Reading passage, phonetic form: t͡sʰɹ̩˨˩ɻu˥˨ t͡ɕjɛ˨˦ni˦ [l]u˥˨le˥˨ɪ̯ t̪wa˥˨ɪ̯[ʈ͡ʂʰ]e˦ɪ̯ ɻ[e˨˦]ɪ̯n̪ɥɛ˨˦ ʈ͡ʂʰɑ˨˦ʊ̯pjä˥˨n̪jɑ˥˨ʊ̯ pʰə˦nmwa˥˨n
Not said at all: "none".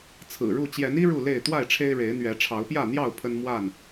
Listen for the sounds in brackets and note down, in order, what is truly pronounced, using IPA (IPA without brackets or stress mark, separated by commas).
ɻ, ʈ͡ʂʰ, e˨˦